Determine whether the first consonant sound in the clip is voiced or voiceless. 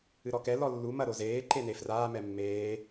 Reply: voiced